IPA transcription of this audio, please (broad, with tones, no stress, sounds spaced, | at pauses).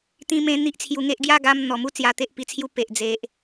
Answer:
t̪ ĩ˧ m ẽ˧ n̪ i˦ ʔ t͡sʰ j u˧ ŋ e˦ ʔ ɡ j a˥˧ ɡ a˧ m n̪ ɔ˨˩ m u˥˧ t͡s j a˧ t̪ e˦ ʔ p i˧ t͡sʰ j u˦ p e˨ ʔ d͡z e˨ ʔ